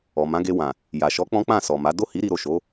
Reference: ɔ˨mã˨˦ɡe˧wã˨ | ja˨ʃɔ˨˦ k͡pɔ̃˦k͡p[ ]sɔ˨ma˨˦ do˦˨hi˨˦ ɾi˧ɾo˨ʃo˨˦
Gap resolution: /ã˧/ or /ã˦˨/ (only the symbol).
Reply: ã˦˨